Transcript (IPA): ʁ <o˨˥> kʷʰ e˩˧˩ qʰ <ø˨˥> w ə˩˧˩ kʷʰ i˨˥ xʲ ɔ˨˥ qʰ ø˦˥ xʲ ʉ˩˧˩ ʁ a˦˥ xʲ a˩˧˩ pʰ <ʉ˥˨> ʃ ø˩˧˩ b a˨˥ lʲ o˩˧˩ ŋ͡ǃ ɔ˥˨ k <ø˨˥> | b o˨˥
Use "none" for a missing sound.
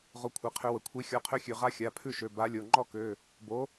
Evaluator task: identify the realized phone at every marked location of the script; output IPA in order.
o˨˥, ø˨˥, ʉ˥˨, ø˩˧˩

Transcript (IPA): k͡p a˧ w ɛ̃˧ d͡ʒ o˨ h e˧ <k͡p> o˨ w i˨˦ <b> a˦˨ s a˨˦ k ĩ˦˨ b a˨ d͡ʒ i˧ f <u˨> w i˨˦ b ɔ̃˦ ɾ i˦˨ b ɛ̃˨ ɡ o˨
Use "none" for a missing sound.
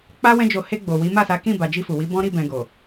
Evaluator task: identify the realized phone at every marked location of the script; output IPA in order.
ɡ͡b, m, u˨

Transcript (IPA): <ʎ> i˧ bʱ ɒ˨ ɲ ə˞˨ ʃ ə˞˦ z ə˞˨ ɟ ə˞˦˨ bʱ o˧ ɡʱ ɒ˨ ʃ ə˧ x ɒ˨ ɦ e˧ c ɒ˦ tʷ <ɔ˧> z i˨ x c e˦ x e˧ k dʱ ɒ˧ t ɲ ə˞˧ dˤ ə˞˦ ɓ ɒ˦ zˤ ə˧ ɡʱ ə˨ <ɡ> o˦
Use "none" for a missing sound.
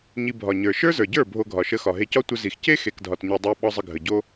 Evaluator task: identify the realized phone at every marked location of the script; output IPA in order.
ɲ, ə˧, ɟ

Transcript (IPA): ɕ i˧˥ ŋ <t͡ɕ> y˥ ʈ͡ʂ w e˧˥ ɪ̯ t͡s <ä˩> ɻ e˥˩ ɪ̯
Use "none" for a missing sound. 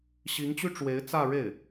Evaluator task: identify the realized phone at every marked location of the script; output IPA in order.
t͡ɕ, ä˥˧

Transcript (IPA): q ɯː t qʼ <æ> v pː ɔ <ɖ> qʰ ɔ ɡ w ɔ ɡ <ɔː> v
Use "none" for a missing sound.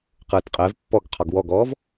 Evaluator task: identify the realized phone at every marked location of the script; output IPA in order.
ɛ, ɡ, ɔː

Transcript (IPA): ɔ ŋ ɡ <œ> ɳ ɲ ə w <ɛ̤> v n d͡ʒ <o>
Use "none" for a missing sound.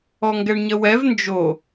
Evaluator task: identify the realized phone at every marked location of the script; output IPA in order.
ɛ, ɛ, o

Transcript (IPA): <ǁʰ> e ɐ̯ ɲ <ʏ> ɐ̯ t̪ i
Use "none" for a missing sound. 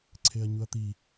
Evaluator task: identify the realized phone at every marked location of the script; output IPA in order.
ǀʰ, u

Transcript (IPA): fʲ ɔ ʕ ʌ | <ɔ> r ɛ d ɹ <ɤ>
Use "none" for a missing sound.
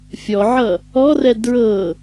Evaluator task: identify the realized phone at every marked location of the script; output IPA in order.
ɔ, ɤ

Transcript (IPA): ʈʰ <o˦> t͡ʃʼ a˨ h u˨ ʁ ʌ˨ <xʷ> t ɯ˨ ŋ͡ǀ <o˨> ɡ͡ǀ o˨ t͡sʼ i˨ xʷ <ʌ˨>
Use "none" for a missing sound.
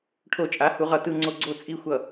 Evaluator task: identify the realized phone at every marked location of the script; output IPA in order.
o˨, none, o˨, ʌ˨

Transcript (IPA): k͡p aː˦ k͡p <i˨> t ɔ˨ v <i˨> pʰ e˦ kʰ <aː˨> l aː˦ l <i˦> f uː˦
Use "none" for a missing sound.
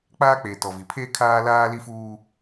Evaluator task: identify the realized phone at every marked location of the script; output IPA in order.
e˨, i˨, aː˦, i˦

